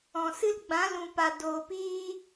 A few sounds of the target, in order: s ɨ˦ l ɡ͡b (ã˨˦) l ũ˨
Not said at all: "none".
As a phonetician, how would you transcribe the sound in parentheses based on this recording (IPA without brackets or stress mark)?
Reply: ã˨˦